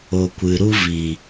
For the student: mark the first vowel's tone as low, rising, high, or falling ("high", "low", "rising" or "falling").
low